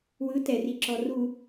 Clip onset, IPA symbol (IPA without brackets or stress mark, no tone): w